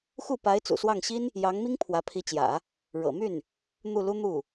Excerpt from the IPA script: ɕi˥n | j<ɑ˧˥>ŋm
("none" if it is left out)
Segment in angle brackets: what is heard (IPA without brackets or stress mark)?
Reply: ɑ˧˥